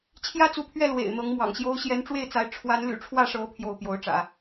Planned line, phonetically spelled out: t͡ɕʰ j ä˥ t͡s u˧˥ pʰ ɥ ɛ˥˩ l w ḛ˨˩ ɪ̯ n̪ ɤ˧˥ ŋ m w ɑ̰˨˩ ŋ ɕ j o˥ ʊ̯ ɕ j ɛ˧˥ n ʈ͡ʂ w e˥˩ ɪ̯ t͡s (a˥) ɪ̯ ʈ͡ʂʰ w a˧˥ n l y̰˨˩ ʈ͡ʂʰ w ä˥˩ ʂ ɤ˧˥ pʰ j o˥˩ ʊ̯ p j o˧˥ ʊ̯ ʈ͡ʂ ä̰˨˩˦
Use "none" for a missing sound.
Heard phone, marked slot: a˧˥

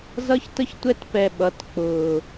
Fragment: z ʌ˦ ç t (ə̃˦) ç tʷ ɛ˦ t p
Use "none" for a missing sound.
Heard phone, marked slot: ə˦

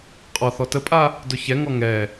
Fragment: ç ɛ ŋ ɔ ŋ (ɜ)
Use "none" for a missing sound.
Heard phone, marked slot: ɛ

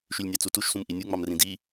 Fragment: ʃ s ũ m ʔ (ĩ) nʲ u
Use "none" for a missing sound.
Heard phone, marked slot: i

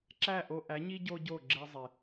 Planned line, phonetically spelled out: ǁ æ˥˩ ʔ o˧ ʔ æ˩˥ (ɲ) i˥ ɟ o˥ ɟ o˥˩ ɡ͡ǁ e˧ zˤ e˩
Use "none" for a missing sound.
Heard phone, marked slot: ɲ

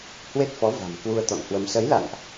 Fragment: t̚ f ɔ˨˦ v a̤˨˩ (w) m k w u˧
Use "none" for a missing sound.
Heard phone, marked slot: none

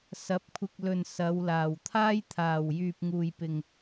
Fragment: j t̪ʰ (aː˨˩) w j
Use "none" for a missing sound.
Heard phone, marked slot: aː˨˩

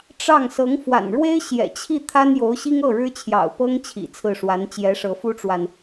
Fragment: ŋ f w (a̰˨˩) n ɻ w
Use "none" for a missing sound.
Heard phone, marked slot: a̰˨˩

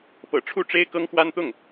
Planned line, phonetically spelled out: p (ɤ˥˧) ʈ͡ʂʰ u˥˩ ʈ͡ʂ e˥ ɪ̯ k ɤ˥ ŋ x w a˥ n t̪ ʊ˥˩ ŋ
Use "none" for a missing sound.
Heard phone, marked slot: ɤ̰˨˩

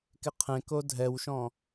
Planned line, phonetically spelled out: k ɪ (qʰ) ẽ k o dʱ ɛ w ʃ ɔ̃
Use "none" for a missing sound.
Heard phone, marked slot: qʰ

